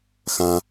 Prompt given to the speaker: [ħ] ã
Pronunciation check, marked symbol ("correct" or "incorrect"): incorrect